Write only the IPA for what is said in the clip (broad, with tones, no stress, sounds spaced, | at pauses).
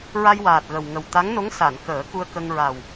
ɹ a˧ j w aː˨˩ t̚ ɣ ə˨˩ w ŋ ə˨˩ w t̪ a˧˥ ŋ n o˧˥ ŋ s a˨˩˨ n k əː˨˩˦ k u˧ ə̯ k ə˧ ŋ ɹ a˨˩ w